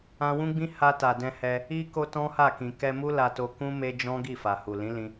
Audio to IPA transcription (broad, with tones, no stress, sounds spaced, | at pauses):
ã˧ w ũ˦ ɡ͡b ĩ˦ h a˧ t a˨ d ɛ̃˧ h ɛ˧ | i˦ k o˦ t ɔ̃˦ h a˦˨ k ĩ˨ k ɛ˧ m u˦ l a˧ t o˧ k ũ˦ m e˦ d͡ʒ ɔ̃˦ ɡ i˦˨ f a˨ h u˨ l ĩ˨˦ l ĩ˧